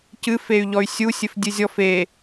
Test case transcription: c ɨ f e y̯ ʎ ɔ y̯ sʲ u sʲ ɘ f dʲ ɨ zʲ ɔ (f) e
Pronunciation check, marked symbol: correct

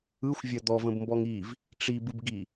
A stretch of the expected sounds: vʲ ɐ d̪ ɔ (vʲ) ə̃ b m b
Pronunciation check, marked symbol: incorrect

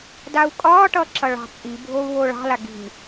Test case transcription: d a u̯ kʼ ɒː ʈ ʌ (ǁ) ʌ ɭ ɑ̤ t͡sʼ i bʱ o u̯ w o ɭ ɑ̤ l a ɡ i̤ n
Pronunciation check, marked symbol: correct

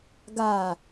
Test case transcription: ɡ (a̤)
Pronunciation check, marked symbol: incorrect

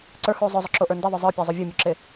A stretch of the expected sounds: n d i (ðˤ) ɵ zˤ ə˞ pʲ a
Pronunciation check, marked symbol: correct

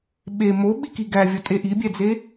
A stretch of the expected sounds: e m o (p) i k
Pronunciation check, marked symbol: incorrect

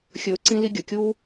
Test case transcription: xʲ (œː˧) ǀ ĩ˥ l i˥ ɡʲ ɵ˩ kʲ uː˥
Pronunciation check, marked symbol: incorrect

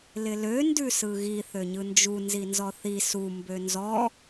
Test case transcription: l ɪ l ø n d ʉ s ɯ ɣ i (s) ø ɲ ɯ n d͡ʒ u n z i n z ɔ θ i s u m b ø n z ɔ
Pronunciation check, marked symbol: incorrect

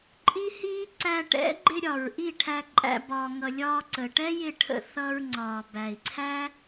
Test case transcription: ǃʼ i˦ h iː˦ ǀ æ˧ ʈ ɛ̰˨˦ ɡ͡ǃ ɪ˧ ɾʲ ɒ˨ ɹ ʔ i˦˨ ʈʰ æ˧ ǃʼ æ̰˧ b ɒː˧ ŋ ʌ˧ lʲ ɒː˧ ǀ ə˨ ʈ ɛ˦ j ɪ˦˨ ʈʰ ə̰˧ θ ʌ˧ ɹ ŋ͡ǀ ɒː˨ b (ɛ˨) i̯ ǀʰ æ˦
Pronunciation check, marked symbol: incorrect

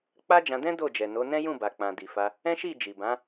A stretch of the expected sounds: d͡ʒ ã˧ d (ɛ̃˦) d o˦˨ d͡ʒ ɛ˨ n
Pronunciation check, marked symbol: correct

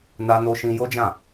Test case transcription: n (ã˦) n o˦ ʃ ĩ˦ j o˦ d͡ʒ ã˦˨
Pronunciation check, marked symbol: incorrect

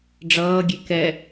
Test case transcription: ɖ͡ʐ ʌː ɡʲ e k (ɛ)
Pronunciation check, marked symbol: correct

